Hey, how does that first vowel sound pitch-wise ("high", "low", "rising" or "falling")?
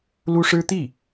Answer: high